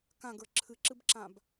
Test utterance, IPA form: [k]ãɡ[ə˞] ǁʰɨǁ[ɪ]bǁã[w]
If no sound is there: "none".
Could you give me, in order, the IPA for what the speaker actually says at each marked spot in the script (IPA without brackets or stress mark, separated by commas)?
k, ə˞, ɨ, b